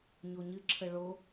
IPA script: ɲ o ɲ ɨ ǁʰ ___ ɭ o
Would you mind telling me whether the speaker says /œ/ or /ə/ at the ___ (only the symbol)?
ə